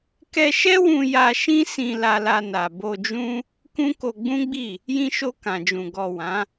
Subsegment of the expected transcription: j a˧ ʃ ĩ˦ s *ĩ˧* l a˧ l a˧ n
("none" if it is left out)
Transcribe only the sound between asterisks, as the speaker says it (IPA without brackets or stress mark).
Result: ĩ˧